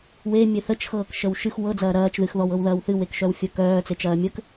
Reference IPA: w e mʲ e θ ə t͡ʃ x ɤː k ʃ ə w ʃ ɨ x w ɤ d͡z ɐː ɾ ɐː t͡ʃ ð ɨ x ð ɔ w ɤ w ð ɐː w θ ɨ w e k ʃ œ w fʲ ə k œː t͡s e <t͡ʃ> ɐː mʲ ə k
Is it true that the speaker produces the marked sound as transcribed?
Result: yes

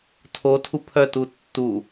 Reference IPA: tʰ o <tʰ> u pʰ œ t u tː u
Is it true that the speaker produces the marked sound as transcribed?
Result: yes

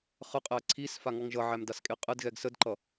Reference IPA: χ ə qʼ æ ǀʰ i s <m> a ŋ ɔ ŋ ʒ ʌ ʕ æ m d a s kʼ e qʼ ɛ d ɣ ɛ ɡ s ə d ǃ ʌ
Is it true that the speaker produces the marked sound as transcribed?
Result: no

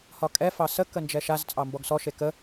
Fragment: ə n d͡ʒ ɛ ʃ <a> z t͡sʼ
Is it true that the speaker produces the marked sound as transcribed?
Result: yes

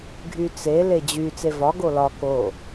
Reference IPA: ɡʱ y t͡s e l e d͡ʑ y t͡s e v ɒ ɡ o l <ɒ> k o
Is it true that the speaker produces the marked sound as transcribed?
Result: yes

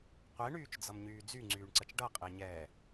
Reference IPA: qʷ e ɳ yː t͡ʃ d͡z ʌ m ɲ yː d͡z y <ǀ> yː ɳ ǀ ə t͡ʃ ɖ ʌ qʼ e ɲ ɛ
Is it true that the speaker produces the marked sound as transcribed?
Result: no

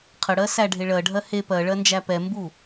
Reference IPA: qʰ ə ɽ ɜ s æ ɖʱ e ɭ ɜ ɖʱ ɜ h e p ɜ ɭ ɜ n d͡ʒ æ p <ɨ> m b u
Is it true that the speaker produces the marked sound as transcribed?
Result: no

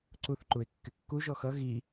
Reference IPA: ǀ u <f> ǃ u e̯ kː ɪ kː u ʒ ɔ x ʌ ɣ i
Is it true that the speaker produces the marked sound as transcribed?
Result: no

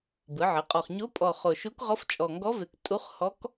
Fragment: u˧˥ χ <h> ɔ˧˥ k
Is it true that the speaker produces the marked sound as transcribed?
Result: yes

